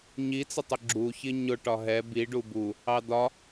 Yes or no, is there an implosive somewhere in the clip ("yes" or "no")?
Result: no